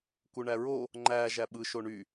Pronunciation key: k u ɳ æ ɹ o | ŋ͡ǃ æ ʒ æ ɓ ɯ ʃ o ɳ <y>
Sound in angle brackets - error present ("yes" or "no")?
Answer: no